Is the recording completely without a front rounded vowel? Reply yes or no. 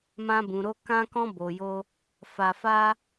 yes